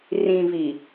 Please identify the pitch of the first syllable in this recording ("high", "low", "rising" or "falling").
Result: low